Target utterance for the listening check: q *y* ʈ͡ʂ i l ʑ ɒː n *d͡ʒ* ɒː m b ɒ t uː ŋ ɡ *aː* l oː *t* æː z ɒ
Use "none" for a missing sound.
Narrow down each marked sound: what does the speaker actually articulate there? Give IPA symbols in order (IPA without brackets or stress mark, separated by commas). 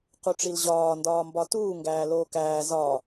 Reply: u, d, æː, k